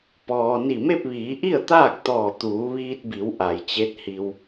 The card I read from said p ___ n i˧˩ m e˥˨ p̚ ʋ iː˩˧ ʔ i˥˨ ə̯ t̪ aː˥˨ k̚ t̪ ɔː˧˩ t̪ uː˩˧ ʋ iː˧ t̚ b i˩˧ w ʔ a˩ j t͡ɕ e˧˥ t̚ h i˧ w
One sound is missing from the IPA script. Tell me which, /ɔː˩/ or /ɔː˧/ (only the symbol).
ɔː˩